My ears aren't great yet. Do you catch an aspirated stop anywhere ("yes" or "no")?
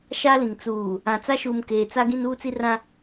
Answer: no